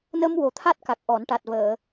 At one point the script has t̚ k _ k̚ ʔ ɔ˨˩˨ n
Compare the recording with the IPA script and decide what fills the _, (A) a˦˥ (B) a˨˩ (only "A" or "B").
B